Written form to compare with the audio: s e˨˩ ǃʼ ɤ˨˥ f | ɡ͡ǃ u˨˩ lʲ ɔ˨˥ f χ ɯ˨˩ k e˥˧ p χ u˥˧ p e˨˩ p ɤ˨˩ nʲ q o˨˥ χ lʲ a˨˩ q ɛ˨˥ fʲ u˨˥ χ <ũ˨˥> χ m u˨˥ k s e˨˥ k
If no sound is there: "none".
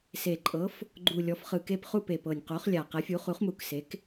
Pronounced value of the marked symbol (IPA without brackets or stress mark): u˨˥